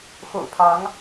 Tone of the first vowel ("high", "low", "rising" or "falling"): low